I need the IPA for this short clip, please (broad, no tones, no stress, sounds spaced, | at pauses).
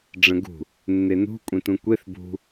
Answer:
ɖ͡ʐ ə̃ ɡ ṳ | nː e n ṳ kʷʼ ẽ t ũ kʷ e θ b ṳ